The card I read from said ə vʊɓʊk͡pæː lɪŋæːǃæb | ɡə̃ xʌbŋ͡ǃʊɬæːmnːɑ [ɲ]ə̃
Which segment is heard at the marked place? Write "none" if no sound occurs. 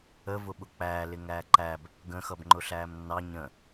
ɲ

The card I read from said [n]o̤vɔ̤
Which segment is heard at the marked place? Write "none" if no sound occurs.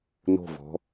n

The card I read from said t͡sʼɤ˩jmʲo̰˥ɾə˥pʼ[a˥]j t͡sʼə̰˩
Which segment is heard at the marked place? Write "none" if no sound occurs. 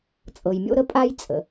a˥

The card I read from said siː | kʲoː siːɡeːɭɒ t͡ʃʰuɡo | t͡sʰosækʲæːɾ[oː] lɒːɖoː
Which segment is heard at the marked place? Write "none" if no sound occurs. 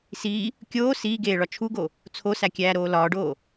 oː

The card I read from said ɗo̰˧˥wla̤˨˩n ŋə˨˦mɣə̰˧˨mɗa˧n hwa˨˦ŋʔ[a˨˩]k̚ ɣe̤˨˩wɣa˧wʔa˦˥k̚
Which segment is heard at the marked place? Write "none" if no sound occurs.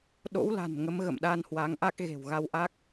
a˦˥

